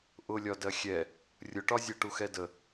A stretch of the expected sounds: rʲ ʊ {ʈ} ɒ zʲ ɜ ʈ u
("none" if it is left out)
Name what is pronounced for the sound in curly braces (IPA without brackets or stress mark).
ʈ